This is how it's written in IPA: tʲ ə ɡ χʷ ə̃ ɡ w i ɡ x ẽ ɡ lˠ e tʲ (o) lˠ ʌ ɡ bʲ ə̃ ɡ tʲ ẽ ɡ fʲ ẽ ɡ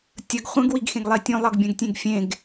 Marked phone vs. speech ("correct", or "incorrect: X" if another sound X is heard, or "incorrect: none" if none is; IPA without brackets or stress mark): incorrect: õ